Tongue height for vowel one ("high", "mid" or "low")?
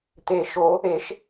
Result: mid